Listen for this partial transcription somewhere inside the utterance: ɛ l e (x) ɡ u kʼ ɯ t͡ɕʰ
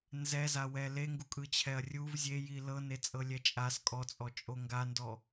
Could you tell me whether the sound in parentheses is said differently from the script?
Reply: yes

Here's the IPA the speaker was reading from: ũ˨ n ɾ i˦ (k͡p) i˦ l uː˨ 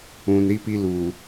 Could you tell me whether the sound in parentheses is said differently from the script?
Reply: yes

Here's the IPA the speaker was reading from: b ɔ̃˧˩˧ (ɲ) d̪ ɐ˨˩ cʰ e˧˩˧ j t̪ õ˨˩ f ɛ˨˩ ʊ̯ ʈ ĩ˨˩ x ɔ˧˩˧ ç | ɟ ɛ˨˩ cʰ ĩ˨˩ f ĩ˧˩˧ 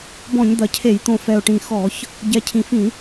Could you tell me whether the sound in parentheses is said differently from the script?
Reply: no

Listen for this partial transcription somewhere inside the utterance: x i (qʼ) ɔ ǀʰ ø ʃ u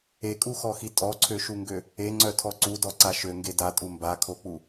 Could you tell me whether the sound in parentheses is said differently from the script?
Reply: yes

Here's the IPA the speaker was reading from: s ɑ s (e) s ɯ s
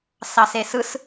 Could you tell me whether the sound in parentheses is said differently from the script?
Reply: no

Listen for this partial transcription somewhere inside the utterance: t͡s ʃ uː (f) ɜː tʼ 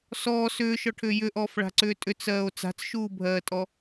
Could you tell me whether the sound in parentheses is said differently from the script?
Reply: yes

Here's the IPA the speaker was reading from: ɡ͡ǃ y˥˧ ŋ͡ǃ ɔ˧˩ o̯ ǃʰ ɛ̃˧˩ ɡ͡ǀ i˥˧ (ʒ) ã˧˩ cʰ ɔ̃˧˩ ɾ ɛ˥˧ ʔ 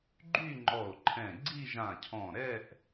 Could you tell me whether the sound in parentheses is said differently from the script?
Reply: no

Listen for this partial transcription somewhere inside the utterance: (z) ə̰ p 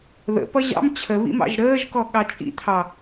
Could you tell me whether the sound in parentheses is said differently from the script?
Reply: yes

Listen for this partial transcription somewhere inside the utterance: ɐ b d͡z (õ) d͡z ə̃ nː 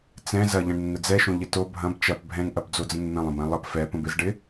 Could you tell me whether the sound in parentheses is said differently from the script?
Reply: yes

